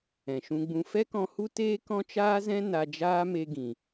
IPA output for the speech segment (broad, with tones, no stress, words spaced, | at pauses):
ɛ̃˨ʃũ˧ɡ͡bũ˧ fɛ˦kɔ̃˧hu˦ teː˦kɔ̃˦t͡ʃaː˦zɛ̃˦ na˧d͡ʒaː˦me˧ ɡĩ˨